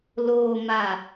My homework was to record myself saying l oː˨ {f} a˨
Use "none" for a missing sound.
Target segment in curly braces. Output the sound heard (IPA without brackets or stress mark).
m